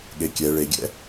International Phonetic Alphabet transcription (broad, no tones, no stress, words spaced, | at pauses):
ɠekʲɛ ɭeɡʲɛ̰